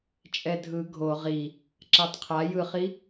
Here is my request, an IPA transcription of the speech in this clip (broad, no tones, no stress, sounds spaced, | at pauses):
t͡ʃʼ ɛ dʱ ɯ ɡʱ o ʁ i | ǁ a tˤ qʰ a j ɯ χ i